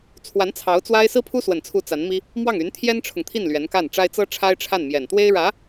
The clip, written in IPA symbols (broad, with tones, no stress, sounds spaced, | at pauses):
t͡sʰ w a˧˥ n t͡sʰ ɑ˧˥ ʊ̯ t͡s w a˥ ɪ̯ s ɹ̩˥ pʰ u˥ s w ə˨˩ n t͡sʰ u˧˥ t͡s a˧˥ n m i˥ | m w ɑ˥˩ ŋ y˧˥ n t̪ʰ j ɛ˥ n ʈ͡ʂʰ ʊ˨ ŋ t̪ʰ i˥˩ n l ɥ ɛ˧˥ n k a˥˩ n ʈ͡ʂ a˥ ɪ̯ t͡s ɤ˥ ʈ͡ʂʰ a˥ ɪ̯ ʈ͡ʂʰ a˥˩ n m j ɛ˨˩ n t̪ w e˥ ɪ̯ ɻ ä˧˥